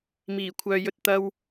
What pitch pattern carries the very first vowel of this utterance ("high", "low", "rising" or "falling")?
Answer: low